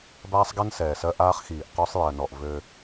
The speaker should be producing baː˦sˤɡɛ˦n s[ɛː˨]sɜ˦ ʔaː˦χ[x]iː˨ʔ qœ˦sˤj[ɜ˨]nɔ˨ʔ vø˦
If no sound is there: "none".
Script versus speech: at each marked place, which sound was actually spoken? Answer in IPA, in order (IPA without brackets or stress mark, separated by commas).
ɛː˨, x, ɜ˨